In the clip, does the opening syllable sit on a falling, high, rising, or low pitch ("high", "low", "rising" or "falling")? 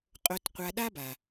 low